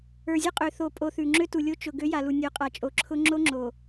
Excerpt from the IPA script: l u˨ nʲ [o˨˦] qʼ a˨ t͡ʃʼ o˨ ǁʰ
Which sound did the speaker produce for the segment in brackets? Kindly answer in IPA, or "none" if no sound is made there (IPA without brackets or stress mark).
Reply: o˨˦